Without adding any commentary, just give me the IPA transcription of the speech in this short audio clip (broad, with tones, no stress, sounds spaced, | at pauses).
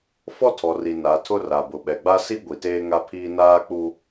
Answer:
f ɔ˦ tʰ ɔ˨ r i˨ n a˨˦ tʰ ʊ˦ r a˨ b ʊ˨ ɓ ɛ˨ ɡ͡b a˦ s i˦ ɡʷ i˨ t eː˦ ŋ a˦ pʰ iː˦ n aː˦ k͡p u˦